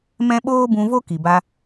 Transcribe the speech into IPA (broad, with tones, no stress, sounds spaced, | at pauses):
m ɛ̃˦ ɓ oː˦ b ũ˧ v o˦ k i˨ b a˧